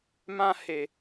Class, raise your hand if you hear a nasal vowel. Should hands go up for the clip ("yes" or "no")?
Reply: yes